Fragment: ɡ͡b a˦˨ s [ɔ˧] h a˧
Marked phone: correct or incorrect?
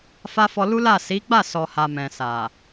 incorrect